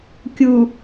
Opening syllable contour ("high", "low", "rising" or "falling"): low